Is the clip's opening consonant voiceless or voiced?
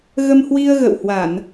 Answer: voiced